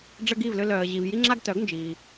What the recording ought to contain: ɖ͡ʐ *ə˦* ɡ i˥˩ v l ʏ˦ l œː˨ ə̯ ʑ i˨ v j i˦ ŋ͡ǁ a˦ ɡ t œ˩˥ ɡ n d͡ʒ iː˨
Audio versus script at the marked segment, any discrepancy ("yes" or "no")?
no